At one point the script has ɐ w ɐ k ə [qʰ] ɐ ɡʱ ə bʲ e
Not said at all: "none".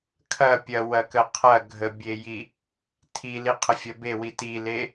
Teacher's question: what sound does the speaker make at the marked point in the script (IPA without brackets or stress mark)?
qʰ